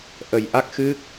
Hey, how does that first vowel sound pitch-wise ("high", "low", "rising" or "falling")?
low